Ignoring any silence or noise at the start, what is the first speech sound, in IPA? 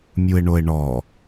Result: mʲ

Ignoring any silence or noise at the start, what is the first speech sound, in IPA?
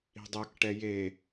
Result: i̤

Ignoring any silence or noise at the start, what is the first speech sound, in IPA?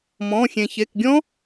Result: m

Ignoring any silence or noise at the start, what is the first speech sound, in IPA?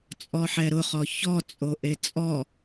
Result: t͡sʼ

